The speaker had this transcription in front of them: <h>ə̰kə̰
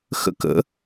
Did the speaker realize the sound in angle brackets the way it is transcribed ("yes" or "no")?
no